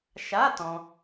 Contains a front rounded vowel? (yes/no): no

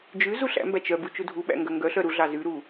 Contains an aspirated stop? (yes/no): no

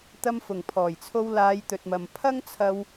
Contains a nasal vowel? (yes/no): no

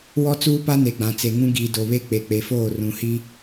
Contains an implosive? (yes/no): no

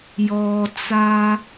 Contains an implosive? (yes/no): no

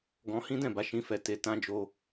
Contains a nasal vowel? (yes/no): yes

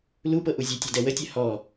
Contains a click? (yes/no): no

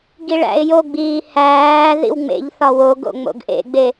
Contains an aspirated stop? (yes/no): no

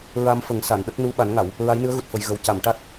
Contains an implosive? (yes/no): yes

